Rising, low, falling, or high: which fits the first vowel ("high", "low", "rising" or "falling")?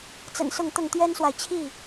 low